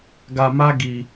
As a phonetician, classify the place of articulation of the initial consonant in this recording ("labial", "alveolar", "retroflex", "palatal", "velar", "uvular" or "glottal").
velar